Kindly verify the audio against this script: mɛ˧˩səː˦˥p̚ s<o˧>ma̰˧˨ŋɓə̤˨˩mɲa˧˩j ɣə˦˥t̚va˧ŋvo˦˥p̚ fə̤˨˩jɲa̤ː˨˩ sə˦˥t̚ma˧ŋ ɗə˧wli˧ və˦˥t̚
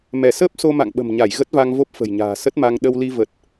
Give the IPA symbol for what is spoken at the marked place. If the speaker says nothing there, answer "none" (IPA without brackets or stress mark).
o˧